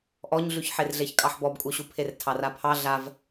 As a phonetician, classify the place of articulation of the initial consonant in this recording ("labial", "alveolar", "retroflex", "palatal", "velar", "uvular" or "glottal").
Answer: glottal